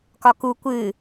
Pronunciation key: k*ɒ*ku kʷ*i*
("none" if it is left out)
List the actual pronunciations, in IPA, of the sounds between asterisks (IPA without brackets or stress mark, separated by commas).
ɒ, ɨ